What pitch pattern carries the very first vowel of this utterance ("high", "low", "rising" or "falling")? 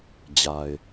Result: low